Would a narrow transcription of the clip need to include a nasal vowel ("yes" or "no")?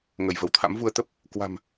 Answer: no